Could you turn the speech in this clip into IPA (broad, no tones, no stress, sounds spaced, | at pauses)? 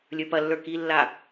lʲ ə˞ p ɐ lː ə˞ k i lː a